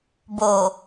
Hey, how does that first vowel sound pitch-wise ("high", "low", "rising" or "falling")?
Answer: low